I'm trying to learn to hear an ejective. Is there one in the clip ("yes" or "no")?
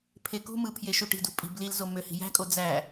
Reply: yes